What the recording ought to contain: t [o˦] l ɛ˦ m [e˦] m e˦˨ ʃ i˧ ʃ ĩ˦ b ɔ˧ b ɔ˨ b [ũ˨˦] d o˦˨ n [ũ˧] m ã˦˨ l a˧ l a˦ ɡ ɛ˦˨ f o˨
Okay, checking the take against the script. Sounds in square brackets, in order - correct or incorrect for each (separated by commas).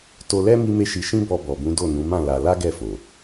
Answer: incorrect, incorrect, correct, incorrect